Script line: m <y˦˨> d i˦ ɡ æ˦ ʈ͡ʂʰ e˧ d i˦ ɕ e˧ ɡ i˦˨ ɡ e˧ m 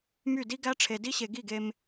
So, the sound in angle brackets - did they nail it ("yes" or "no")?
yes